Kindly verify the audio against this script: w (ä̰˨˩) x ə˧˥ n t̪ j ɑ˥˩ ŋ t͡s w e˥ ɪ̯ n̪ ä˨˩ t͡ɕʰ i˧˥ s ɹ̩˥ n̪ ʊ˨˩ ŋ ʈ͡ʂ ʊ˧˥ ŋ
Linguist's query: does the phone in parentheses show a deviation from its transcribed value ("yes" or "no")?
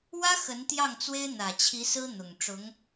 yes